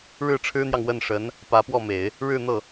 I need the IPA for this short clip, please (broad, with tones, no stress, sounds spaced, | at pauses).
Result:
ɻ ɻ̩˥˩ ʈ͡ʂʰ ɻ̩˥ n̪ j ɑ˨ ŋ w ə˥˩ n ʂ ə˧˥ n | p ä˧˥ p w ɔ˥˩ m e˨˩˦ ɪ̯ | ɻ ɻ̩˥˧ n̪ ɤ˥˩